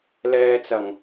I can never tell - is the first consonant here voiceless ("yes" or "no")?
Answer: no